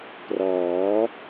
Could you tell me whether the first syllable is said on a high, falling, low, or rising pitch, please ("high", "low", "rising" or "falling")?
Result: rising